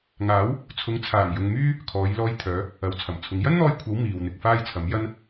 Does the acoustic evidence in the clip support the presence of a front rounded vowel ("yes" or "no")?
yes